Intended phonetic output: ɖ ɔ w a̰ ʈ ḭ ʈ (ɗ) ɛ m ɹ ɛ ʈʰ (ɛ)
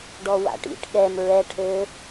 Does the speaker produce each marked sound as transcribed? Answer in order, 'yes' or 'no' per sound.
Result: no, no

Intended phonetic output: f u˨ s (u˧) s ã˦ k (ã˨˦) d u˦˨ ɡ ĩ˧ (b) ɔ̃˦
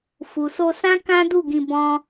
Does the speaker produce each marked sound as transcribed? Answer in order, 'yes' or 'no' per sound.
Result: no, no, yes

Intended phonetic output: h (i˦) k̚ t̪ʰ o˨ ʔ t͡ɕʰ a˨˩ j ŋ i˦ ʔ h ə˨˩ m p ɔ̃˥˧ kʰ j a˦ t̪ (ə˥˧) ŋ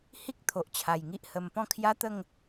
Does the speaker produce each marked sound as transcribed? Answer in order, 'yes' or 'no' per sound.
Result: yes, yes

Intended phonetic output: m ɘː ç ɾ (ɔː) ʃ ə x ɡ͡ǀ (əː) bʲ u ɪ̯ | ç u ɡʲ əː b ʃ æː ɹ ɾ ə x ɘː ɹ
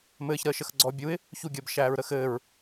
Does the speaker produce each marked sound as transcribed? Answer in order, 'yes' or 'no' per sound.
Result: no, no

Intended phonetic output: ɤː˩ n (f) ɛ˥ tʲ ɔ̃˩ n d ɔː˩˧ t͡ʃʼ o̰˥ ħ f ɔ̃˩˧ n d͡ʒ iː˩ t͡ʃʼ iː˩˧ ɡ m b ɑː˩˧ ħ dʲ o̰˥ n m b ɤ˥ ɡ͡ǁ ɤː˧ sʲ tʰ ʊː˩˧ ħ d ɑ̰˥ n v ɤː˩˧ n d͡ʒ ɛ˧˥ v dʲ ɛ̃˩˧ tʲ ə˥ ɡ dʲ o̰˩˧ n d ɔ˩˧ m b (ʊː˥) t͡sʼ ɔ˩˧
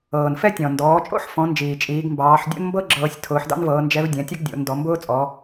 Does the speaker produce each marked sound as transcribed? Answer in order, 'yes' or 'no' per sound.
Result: yes, yes

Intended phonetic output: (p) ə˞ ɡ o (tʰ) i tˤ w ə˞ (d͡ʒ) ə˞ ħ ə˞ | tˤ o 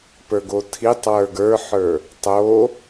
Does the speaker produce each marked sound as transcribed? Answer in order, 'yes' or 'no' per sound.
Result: yes, yes, no

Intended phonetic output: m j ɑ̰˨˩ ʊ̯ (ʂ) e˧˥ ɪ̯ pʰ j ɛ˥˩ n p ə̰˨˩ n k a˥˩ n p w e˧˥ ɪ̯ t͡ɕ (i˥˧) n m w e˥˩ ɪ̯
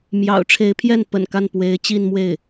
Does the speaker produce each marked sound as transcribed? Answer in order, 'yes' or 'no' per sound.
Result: no, yes

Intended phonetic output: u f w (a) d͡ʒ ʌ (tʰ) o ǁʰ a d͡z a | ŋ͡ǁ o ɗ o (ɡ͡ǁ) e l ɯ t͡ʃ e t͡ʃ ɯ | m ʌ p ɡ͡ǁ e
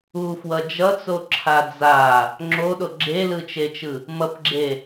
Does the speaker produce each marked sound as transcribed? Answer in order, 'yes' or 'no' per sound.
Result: no, no, yes

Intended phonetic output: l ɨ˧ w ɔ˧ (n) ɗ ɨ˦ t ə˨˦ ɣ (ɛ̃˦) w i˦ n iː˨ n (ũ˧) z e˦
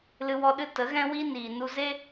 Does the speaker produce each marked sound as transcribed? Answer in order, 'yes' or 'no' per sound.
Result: no, yes, no

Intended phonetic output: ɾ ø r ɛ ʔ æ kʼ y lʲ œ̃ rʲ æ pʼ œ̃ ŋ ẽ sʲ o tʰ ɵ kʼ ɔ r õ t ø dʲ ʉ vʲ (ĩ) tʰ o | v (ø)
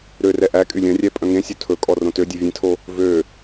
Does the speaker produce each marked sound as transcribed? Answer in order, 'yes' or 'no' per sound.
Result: no, yes

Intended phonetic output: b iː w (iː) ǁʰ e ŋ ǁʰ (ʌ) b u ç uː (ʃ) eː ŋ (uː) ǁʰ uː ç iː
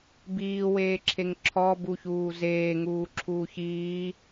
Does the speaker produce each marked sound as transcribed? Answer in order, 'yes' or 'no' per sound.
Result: no, no, no, yes

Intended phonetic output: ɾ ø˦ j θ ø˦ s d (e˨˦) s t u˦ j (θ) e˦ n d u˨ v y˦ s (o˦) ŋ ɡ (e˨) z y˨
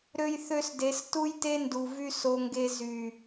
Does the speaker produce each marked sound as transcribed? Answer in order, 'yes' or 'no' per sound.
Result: yes, no, yes, no

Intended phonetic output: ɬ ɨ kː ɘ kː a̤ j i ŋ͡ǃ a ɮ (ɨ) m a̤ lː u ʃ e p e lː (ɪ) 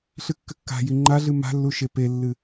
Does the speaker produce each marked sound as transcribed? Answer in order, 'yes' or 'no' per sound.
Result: yes, no

